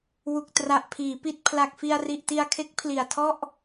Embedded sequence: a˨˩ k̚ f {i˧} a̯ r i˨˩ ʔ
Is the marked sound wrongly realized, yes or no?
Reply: no